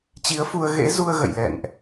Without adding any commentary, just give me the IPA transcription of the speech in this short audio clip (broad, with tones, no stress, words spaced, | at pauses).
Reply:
t͡ɕi˨˦ə̯fu˧ə̯ɣḛ˧˥ zu˧ə̯ɣə̰˧˨jlɛ̰˧˨nʔ